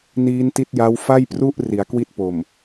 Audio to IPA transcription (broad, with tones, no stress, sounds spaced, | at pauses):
n iː˦˥ n t i˦˥ t̚ j a˦˥ w f a˥˩ j p r u˥˩ ʔ r i˩˦ a̯ k w i˦˥ t̚ p o˨˩ m